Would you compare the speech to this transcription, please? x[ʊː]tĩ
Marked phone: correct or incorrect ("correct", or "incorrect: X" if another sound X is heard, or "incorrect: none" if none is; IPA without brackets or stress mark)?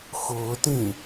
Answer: correct